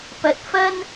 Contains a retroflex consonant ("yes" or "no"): no